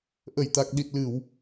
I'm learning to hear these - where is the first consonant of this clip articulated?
throat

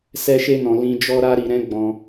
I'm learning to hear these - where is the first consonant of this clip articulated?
tongue tip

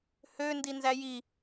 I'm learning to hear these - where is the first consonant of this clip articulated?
throat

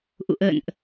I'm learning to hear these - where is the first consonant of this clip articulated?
throat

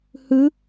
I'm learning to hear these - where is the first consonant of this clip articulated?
throat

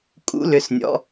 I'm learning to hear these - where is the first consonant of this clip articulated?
velum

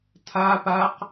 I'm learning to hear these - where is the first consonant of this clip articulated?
tongue tip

